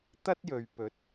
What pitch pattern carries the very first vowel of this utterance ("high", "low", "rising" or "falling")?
high